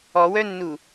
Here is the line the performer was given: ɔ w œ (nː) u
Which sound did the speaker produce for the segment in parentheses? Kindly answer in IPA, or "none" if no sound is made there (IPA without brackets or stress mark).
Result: nː